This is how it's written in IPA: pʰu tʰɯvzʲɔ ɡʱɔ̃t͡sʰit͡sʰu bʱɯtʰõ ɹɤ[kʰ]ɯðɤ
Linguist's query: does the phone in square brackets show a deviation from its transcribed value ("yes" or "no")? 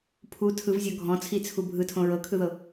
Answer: no